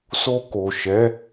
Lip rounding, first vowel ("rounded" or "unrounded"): rounded